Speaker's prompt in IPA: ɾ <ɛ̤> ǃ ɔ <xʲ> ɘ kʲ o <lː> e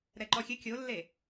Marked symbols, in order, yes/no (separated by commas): no, yes, yes